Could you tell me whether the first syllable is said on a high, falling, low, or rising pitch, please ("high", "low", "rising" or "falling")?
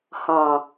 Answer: low